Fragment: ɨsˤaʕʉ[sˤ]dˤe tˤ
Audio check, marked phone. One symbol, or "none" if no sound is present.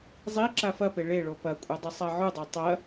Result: none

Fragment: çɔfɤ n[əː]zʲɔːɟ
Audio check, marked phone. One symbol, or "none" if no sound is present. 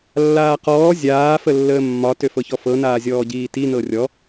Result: aː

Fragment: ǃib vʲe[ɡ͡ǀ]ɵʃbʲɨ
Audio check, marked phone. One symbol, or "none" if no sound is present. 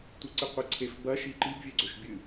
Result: ɡ͡ǀ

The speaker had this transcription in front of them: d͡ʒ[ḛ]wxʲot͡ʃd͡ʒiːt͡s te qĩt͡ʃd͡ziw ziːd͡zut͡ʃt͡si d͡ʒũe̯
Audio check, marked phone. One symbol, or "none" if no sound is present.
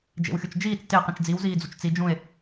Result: ḛ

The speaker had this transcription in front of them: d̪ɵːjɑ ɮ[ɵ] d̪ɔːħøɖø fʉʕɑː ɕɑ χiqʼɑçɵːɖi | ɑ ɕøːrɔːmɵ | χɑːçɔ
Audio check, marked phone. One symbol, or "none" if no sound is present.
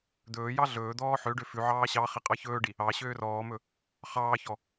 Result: ɵː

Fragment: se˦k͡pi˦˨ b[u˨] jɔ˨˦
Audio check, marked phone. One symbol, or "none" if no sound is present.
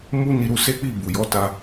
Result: u˨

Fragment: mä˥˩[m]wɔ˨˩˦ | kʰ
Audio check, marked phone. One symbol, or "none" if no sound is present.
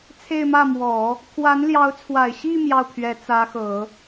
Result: m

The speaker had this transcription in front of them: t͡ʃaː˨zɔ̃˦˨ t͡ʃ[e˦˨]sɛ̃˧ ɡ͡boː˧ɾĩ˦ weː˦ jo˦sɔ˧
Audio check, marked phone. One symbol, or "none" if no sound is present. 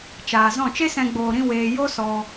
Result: e˦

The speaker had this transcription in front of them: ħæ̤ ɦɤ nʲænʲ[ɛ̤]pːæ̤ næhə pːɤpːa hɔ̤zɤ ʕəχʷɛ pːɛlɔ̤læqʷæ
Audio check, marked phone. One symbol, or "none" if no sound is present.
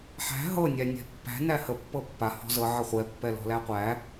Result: ɛ̤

